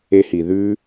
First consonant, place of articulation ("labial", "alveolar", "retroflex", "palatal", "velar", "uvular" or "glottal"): glottal